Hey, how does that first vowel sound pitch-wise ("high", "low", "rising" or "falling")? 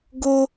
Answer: high